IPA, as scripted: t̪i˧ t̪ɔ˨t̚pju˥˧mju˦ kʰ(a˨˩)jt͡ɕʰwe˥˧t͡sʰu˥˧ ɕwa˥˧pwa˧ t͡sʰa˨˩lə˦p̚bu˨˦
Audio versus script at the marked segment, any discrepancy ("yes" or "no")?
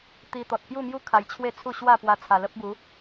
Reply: yes